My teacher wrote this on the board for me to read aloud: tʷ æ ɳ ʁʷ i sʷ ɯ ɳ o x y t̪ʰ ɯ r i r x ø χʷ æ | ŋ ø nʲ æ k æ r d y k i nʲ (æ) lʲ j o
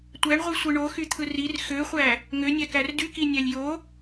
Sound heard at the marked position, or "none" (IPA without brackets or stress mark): æ